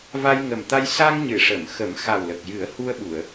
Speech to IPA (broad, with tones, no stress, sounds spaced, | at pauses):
v a˧ j ŋ ə˨˩ m t̪ a˧ j s a˧ ŋ ɲ ɨ˨˩˨ ʂ ə˨˩˨ m x ə˨˩˦ m x a˨˩ w l ə˨˩ k̚ j ɨ˨˩˦ ə̯ h u˧ ə̯ ɓ u˨˩˨ ə̯